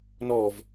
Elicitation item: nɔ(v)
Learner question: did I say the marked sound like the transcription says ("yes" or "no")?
yes